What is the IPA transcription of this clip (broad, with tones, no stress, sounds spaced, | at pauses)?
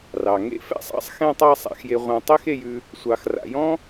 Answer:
r ɑ˩ ŋ ḛ˥ f ɛ̰˥ sˤ ɑ̰˥ sˤ x ɛ̃˦ tˤ ɑ˦ sˤ a̰˨ x j e˨ ʁʷ ã˨ tˤ e˥ x e˨ j ʉ˨ | sʷ ɑ˨ x r a̰˨ j ɔ̃˥